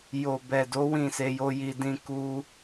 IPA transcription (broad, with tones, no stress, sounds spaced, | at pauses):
j o˨ b ɛ˨ d o˨˦ w ĩ˦˨ s e˧ j o˦ j i˧ d ĩ˧ k u˧